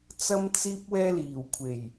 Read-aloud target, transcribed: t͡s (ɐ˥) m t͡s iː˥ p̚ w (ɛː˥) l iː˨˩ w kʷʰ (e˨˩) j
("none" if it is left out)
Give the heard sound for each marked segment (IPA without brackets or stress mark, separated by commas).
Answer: ɐ˥, ɛː˥, e˨˩